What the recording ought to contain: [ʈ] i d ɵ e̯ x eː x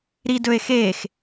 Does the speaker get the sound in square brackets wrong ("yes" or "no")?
yes